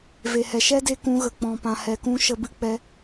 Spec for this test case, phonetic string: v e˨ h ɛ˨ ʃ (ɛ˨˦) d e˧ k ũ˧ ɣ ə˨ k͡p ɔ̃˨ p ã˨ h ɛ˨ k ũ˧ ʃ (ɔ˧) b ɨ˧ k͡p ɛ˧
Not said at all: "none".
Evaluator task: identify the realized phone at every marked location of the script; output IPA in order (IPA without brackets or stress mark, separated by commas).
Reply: ɛ˦, ə˧